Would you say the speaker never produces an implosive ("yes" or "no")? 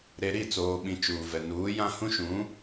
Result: no